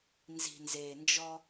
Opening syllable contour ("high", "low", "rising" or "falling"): low